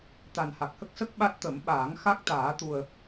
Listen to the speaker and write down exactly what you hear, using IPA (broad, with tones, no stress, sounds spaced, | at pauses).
t̪ a˨˩ n h a˨˩ k̚ h ə˦˥ k̚ s ə˦˥ k̚ ɓ a˦˥ t̚ t̪ ə˨˩˦ m ɓ aː˨˩˦ ŋ x a˦˥ k̚ t̪ aː˨˩˦ t̪ u˨˩ ə̯